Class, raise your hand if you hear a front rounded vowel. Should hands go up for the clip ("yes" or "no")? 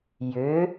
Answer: yes